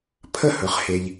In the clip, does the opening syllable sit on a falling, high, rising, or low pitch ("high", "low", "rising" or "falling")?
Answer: falling